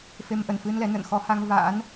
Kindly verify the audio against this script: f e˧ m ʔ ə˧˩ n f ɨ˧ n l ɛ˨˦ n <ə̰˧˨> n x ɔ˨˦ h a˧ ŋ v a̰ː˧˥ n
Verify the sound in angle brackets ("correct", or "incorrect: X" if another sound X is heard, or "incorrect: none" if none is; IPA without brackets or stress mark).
correct